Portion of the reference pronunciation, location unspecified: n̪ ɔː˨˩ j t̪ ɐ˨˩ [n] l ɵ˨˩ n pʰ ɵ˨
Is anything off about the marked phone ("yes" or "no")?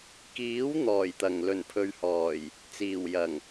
yes